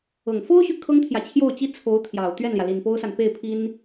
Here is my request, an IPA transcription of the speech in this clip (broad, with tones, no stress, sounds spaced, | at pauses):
ɤ˨˩ ŋ f o˥ ʊ̯ ɕ y˨ kʰ ɤ˥ ŋ t̪ʰ j ä˨ t͡ɕʰ j o˥˩ ʊ̯ t͡ɕ i˥ t͡sʰ o˧˥ ʊ̯ t̪ʰ j ɑ˨˩ ʊ̯ t̪ ɥ ɛ˥˩ n l j ä˩ l i˨˩ n p o˥ ʊ̯ s a˨ n p e˥˩ ɪ̯ pʰ i˥ n